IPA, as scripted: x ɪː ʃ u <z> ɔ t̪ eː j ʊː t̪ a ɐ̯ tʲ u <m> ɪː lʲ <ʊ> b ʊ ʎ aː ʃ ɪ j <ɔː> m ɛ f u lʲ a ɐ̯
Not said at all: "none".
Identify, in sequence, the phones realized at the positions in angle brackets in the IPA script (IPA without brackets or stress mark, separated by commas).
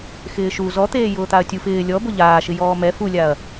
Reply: z, f, ɔ, ɔː